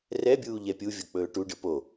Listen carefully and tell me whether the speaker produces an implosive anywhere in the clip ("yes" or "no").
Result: no